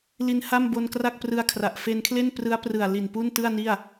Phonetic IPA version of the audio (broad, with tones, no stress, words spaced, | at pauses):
li˧nha˥˩m bo˧nkra˥˩k̚prɯ˧a̯kʰra˨˩ʔ fe˧nkʰle˥˩n prɯ˦˥a̯prɯ˨˩a̯ li˨˩npu˥˩ntɯ˥˩a̯ni˥˩a̯